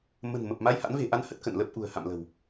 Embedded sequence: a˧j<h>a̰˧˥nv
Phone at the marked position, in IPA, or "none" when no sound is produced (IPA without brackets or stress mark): h